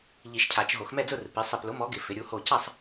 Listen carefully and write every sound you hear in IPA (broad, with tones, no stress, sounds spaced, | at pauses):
ʎ i˨˩˦ ʃ cʰ a˨˩˦ t͡ʃ ɦ o˨˩˦ x m ɛ˥˧ d͡z ʊ˥˧ r p i˨˥ sˤ ɪ˧˩ p l ʊ˨˥ m ɔ˨˥ ɡ ɪ˨˩˦ f ɪ˨˥ ɾʲ u˨˥ h o˥˧ c a˥˧ sˤ